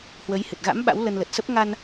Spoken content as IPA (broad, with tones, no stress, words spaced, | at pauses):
hwə˨˦jhɨ˨˩t̚ ɣa̰˧˥m ɓa̰˧˥wlə˧nlə˨˩t̚sə˦˥p̚ ŋa˧n